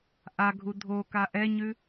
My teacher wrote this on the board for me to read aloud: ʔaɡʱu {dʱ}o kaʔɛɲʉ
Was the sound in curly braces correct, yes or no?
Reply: yes